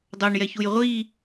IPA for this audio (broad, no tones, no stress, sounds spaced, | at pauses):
dˤ o ɳ j ɛ ç u j ʁʷ i